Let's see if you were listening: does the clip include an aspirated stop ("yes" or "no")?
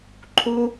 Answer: yes